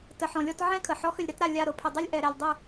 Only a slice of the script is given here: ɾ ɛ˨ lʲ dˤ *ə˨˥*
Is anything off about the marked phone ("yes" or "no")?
yes